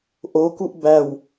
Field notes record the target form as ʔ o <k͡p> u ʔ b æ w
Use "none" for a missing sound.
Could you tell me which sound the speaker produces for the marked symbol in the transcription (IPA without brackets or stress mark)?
k